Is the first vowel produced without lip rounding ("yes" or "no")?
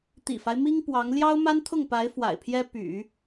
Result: yes